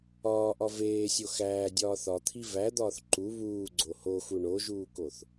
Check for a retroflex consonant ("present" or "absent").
present